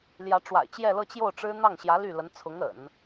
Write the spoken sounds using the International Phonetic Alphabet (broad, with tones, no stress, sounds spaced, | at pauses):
l j ä˧˥ ʈ͡ʂ w a̰˨˩ ɪ̯ t͡ɕ j ɛ˥˧ l ɤ˥˧ t͡ɕ j o˥˩ ʊ̯ ʈ͡ʂ ɻ̩˥ n̪ ɑ˥˩ ŋ ɕ j ä˧˥ l y˥˩ l ə˧˥ n t͡sʰ ʊ˧˥ ŋ ə̰˨˩˦ n